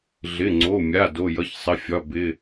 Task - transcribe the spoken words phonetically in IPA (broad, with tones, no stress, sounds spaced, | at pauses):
ɮ ɪ˩˧˩ ŋ͡ǀ o˩˧˩ mʲ a˩˧˩ d o˩˧˩ j ʌ˩˧˩ ç sˤ ɪ˩˧˩ fʲ ɒ˩˧˩ b ɪ˩˧˩